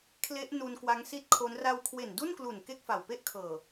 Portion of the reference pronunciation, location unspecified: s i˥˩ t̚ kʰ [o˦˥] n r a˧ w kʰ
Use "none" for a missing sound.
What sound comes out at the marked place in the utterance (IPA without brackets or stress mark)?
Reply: o˦˥